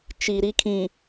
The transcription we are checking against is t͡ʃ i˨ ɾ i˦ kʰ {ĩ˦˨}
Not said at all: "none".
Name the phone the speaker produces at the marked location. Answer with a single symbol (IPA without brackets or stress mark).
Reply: ĩ˨